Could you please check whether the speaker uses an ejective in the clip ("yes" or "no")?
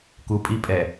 yes